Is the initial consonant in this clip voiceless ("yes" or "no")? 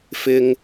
yes